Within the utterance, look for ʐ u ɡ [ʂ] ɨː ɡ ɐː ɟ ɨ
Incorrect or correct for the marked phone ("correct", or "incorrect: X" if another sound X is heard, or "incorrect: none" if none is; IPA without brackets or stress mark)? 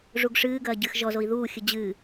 correct